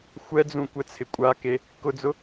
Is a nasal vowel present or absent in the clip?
present